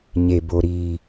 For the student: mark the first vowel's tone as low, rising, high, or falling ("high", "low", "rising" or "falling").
low